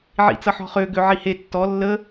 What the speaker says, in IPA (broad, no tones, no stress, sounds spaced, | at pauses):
ʕ ḭ t͡s ʌ ħ ɔ̤ χ ø ɡ ø ʕ i h e tː ɔ lː ə